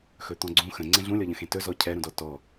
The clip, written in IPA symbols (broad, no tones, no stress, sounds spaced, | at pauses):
x ɵ t̪ ɔ̃ ɡ͡ǀ ũ x ə̃ ŋ͡ǀ ɛ̃ ɮ ũ lʲ ɔ ʎ ə̃ x ẽ t ɵ z ɔ cʰ ɛ ɾ ũ d ɔ t ɔ